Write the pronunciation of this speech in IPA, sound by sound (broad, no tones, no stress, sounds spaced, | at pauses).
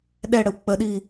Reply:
ɗ ɛ ɽ ə w k͡p ə ɗ i